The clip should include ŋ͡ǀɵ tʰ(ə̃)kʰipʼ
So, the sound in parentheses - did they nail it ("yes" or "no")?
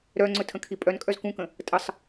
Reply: yes